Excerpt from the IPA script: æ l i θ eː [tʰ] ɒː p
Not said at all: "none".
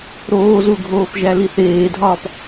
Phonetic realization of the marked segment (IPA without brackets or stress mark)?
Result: dʱ